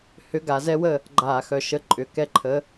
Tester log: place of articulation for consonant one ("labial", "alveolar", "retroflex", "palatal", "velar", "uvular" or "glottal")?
glottal